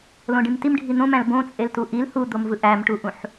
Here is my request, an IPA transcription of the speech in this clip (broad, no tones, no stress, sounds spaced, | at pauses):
l õ ɖ ĩ m t i m ɖʱ i n̪ õ m æ̃ l b õ t͡sʼ e l t u ʔ i l h u d̪ o m v ɯ ʔ æ m ʈ u ʔ ũ ħ